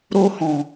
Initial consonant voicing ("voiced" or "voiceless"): voiced